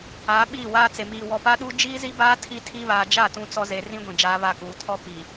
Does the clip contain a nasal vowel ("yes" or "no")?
yes